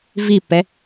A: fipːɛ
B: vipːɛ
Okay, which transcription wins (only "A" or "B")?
B